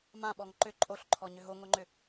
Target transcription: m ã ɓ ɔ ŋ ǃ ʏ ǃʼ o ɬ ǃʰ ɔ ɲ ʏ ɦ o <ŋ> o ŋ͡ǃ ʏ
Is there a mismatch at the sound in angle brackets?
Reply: no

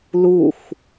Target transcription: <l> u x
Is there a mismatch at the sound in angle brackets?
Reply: no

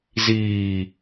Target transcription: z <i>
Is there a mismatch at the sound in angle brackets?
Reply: yes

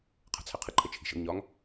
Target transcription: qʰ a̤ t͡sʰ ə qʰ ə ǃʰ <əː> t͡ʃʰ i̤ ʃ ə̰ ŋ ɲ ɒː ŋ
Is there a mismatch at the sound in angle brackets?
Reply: yes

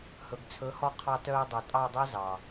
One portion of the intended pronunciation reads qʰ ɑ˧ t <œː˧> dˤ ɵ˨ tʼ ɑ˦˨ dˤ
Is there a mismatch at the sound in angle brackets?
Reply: no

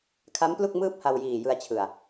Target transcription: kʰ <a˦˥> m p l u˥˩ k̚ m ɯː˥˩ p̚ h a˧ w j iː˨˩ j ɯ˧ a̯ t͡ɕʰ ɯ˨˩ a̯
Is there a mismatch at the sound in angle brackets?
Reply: no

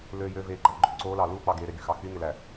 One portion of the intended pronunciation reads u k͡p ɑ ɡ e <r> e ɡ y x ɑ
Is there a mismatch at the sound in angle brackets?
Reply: yes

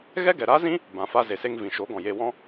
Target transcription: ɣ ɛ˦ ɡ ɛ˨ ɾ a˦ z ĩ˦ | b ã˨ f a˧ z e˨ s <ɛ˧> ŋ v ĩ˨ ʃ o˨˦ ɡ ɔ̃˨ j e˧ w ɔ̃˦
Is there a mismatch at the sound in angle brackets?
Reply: yes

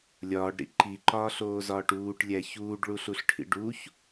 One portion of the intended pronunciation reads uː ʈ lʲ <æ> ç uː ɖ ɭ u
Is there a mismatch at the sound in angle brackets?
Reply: no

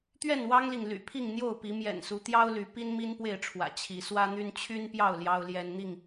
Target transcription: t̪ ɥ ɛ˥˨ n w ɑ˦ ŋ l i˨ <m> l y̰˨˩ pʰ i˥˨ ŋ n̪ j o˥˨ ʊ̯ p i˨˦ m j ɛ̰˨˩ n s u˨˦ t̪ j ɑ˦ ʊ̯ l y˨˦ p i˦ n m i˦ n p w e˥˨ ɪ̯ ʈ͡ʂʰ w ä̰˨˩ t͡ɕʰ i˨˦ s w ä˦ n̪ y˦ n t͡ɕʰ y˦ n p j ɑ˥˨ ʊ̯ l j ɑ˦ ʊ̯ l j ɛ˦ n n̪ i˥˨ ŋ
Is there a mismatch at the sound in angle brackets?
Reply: yes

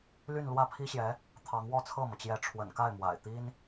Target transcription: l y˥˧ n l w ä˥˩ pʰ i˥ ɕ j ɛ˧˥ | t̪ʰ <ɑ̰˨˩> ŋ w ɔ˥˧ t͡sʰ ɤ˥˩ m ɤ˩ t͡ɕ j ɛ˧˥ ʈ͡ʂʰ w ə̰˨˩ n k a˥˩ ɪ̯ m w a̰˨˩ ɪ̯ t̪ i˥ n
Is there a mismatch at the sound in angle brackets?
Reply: yes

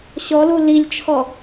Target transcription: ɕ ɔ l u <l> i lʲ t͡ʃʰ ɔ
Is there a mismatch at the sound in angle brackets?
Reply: no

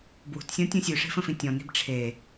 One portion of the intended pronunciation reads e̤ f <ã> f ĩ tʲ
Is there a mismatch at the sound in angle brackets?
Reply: yes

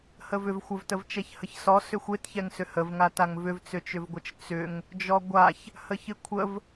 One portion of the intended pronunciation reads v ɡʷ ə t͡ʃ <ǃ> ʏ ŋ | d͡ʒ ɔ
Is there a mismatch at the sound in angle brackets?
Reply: yes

